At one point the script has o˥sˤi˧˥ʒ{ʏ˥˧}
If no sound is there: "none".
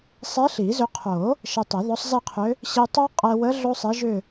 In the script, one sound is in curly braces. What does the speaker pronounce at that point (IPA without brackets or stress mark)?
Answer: ʏ˥˧